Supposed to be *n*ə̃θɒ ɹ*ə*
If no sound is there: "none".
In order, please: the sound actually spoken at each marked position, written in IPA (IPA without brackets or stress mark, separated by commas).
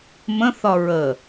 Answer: m, ə